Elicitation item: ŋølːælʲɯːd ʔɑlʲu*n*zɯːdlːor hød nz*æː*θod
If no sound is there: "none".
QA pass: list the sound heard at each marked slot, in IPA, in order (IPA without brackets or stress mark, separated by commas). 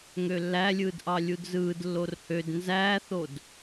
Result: d, æː